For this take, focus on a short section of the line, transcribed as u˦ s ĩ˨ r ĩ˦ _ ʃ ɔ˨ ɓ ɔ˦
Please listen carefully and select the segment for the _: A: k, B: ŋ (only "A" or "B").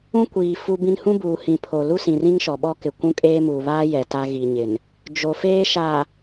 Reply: B